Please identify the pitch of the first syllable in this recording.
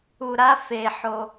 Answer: low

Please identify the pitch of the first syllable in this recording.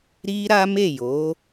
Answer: high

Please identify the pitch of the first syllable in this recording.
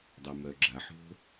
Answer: low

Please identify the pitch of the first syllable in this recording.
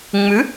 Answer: rising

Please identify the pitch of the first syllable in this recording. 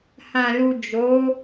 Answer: low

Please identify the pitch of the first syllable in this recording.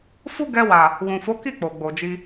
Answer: high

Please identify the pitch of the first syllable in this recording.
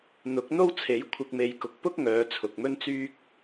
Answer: rising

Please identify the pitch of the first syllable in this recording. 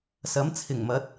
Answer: rising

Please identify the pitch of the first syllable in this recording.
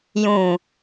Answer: low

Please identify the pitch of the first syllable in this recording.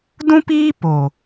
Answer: high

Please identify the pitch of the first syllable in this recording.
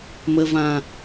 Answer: low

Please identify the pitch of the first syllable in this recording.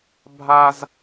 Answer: high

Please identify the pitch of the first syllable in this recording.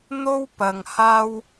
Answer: high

